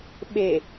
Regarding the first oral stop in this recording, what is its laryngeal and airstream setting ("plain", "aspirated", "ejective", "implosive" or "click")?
implosive